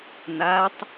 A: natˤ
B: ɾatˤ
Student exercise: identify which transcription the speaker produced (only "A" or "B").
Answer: A